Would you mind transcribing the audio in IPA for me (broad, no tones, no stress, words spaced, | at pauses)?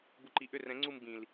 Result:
buǃiʔʏ rɛ̃ ŋ͡ǀum bĩl